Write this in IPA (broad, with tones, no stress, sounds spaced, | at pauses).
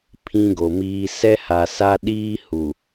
pʰ ĩ˦ ɡ o˨ m iː˦ s ɛ˦ h a˨ s a˦ ɗ iː˦ h u˨